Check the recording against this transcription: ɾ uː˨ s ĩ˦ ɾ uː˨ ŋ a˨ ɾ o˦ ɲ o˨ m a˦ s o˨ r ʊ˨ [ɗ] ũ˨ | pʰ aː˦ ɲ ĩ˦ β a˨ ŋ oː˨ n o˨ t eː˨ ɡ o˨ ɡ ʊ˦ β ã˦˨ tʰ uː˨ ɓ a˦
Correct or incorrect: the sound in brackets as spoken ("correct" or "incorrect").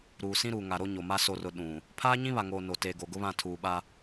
correct